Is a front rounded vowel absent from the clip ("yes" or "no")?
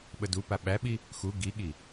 yes